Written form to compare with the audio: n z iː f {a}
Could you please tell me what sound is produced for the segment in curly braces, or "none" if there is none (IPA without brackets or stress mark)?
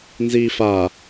a